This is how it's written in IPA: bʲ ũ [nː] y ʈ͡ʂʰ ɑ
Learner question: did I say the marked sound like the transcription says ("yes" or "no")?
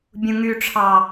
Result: no